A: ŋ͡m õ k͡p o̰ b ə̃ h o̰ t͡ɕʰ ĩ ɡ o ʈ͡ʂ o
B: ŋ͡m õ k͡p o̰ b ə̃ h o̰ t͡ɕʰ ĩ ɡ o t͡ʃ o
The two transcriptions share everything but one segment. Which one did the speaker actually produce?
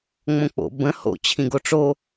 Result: A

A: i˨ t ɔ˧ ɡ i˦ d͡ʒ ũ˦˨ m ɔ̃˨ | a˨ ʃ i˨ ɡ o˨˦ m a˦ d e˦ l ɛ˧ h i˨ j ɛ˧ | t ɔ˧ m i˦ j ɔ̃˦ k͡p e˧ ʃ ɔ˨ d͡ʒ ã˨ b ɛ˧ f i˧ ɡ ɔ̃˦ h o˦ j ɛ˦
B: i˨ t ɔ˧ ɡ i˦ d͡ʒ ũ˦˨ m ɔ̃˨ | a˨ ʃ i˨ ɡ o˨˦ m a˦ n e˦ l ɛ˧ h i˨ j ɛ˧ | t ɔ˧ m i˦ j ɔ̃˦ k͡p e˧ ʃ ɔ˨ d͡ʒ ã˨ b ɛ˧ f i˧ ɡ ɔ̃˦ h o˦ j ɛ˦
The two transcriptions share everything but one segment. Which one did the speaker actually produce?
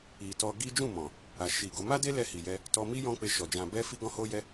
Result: A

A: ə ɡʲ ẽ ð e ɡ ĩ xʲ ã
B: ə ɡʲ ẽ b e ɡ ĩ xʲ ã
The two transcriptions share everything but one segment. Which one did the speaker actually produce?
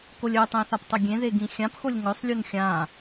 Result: A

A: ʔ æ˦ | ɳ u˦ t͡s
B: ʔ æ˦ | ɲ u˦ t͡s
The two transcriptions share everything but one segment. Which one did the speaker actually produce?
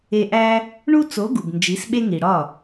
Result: A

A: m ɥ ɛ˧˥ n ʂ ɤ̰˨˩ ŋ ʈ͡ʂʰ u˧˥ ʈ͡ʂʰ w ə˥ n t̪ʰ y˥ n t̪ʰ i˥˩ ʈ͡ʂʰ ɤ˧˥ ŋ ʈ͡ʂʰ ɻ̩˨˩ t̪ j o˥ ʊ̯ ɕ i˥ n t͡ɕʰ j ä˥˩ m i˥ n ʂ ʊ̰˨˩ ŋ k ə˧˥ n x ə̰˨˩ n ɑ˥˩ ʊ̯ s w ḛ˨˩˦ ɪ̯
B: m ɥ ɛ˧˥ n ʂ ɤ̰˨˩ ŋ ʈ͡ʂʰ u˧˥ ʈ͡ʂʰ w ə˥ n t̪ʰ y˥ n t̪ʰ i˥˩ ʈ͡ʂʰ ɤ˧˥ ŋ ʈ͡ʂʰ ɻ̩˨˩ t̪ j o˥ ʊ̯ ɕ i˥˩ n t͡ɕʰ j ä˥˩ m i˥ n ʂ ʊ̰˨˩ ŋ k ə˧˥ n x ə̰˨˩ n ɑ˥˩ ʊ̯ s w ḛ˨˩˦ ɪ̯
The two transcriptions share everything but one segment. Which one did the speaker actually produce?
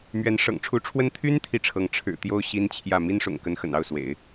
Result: A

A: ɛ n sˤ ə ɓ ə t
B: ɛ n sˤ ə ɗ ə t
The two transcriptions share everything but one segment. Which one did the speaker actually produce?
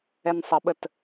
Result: A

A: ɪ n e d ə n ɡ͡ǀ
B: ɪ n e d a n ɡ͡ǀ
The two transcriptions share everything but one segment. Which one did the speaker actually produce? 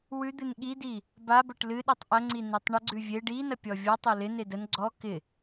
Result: A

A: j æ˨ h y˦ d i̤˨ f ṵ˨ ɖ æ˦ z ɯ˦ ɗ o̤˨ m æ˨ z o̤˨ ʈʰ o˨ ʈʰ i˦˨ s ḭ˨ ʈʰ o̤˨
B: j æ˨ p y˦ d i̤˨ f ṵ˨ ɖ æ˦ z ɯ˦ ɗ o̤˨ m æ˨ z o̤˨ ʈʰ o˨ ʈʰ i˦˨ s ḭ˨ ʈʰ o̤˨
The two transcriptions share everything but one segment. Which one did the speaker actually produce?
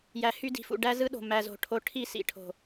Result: A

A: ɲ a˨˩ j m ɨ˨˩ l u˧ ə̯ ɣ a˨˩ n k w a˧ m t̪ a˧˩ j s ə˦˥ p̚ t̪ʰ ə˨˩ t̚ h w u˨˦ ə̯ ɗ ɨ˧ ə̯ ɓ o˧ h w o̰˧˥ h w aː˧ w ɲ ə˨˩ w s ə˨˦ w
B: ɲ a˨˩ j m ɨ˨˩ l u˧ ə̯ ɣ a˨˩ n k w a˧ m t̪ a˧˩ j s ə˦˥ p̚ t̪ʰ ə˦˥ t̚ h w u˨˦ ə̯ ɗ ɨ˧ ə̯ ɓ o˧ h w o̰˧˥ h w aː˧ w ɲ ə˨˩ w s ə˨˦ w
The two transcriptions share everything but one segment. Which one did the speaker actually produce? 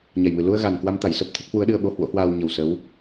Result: B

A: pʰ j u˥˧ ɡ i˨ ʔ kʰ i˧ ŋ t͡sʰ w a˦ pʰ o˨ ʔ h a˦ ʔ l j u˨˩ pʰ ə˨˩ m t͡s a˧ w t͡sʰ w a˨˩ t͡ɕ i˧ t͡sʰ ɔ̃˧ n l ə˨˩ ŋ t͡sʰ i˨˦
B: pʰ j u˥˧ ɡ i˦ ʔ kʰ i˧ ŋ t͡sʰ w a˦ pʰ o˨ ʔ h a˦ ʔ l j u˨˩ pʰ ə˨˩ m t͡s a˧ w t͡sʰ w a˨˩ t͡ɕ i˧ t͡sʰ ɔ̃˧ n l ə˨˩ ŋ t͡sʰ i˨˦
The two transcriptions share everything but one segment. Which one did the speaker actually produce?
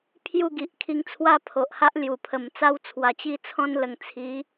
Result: A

